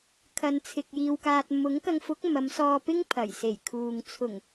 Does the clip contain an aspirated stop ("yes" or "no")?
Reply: yes